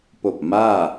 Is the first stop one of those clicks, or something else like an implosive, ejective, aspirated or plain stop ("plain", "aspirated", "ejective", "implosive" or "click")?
plain